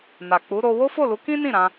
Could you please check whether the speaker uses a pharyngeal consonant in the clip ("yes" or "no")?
no